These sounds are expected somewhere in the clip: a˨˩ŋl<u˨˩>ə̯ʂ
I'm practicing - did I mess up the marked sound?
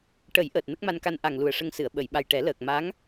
no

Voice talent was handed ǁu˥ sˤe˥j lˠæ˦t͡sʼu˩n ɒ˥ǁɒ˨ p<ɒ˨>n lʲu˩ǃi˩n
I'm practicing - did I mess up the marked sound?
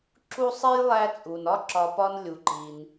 yes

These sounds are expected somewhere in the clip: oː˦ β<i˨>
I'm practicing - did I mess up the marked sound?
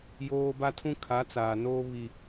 no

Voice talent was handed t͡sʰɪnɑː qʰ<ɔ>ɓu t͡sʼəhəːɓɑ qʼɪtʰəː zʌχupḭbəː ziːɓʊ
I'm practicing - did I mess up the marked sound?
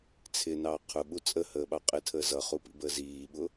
yes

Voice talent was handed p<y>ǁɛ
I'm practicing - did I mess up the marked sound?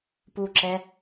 yes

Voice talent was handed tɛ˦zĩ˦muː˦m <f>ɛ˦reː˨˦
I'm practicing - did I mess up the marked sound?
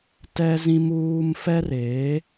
no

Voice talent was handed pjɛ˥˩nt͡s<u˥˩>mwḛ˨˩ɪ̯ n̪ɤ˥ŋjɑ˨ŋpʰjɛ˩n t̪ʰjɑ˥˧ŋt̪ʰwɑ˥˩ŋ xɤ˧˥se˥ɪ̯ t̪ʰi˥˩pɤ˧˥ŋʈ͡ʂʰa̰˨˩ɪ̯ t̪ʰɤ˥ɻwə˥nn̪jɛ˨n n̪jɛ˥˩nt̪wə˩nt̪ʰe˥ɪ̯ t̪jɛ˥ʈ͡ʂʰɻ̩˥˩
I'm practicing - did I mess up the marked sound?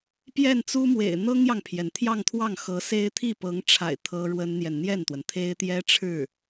yes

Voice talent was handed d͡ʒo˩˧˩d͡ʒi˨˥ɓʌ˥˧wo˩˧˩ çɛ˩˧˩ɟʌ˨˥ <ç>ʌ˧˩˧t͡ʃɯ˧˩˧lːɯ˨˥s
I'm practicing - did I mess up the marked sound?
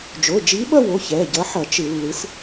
yes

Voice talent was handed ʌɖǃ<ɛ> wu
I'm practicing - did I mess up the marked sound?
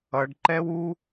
no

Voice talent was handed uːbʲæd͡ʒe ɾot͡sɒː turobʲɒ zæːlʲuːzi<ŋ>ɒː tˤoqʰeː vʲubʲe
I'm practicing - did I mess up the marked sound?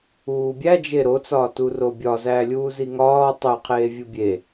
no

